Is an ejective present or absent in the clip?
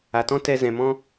absent